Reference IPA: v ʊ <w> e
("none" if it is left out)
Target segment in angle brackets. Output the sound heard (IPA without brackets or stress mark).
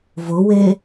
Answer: w